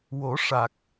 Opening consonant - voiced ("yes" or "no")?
yes